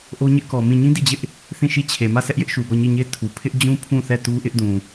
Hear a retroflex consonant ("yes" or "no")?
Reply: no